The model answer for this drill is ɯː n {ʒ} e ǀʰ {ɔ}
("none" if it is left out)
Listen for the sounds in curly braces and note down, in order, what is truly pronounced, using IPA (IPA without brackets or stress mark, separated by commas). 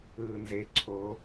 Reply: z, o